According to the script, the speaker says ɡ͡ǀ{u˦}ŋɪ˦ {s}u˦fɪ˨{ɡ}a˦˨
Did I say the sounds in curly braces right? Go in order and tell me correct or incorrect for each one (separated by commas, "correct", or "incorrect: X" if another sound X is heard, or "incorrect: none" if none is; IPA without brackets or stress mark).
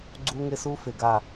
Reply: correct, correct, correct